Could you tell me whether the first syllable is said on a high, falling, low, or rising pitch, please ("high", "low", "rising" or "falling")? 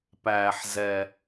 low